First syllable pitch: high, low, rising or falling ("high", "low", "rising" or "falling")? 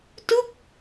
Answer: falling